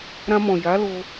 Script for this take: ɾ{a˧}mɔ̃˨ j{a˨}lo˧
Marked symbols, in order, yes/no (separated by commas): no, no